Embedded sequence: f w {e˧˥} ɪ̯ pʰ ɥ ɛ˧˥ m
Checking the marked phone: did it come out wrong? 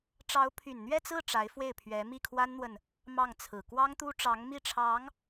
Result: yes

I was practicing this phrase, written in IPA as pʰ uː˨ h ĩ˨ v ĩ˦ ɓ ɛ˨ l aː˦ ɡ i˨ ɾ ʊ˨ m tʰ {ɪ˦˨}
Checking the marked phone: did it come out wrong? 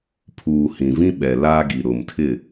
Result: no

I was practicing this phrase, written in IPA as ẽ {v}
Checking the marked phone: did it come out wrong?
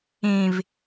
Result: no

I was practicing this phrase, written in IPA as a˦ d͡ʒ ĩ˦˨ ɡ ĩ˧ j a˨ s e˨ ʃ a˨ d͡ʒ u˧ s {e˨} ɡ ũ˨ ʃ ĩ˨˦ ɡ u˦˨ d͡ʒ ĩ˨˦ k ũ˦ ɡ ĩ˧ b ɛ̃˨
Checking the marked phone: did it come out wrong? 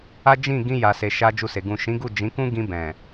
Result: no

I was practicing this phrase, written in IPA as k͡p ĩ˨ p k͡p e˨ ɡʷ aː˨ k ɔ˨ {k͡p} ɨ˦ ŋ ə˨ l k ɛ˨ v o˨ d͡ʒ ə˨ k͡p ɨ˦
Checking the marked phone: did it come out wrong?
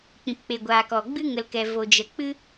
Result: yes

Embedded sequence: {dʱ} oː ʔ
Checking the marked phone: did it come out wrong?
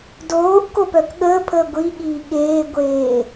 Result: yes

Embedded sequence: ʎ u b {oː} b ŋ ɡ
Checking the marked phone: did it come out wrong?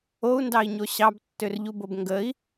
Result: yes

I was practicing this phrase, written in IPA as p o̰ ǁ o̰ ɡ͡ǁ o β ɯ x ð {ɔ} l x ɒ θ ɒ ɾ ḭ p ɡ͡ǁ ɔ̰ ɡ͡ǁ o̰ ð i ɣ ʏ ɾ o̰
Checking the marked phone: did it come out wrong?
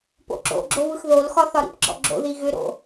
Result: yes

